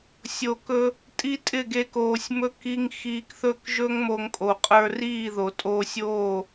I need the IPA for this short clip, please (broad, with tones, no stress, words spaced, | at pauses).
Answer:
sʲo˨kɵ˧ | tʼi˦tʼɪ˦˨ɡe˧koː˨sʲ mɵ˧ ki˧ŋ xiː˧kθɵ˦˨k ʒɵ˦ŋ mo˧ŋkʼo˨qʼə˞˧ riː˦˨ðo˨tʼoː˧sʲoː˦˨